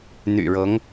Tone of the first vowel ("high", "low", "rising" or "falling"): low